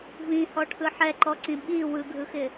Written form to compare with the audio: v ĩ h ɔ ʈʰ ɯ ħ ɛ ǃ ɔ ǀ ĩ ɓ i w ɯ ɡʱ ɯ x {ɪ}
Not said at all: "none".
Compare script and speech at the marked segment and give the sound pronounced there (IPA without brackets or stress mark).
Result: ɪ